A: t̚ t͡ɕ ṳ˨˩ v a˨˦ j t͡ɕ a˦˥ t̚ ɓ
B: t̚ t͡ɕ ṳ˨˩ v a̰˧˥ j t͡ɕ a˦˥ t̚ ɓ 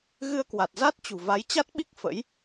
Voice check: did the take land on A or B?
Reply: A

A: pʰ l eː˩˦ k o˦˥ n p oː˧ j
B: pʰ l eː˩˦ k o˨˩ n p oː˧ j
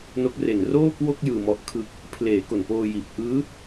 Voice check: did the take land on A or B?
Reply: B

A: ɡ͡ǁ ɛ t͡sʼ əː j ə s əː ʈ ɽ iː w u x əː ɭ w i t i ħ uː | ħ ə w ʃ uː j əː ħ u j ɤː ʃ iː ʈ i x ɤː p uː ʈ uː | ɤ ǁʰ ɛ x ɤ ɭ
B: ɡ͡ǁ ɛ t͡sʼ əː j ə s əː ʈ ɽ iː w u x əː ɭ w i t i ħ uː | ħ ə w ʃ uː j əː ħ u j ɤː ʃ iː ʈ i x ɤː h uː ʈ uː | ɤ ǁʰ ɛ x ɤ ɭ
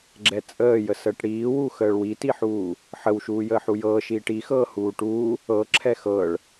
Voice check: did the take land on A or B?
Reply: B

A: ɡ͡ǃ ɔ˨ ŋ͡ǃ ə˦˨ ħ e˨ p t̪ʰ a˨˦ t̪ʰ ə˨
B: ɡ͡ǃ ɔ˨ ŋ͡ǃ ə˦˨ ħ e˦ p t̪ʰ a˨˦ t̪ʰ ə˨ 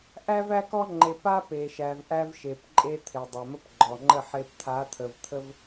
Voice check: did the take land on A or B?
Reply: B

